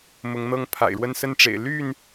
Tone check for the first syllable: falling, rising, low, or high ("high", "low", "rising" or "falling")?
rising